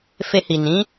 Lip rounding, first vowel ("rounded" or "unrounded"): unrounded